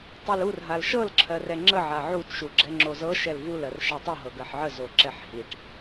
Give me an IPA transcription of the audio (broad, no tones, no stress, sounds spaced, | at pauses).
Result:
tˤ i l u r ɦ a l ʃ ɤ l ǁʰ ɜ r ɛ ŋ͡ǁ ə ʕ a ʕ u t ʃ u ɡ͡ǁ ɛ ŋ͡ǁ o z ɤ ʃ ɛ l v u l ɜ r ʃ a tˤ ɤ ɦ ɤ ɡ ɜ ħ ʕ ə z o ǁ ɛ ħ h i ʈ